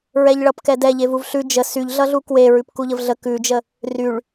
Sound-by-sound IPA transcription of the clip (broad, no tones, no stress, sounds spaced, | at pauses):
ɹ ɛ ʎ ɭ ʌ p k ɛ d ɛ ʎ e v u v ɬ ʉ d͡ʒ ə s y ʎ ɮ ʌ ɮ u k w e ɹ ʉ p k u ʎ ə v ɮ ə k ʉ d͡ʒ ə | r y ɭ